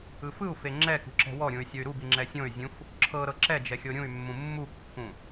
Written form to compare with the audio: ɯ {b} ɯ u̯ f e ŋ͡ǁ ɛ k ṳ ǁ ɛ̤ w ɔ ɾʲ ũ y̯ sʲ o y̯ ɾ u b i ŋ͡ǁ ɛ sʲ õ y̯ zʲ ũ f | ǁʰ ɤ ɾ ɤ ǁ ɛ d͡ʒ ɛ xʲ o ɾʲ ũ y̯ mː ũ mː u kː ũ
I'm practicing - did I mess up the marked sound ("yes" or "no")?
yes